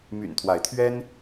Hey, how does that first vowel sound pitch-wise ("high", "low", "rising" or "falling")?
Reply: low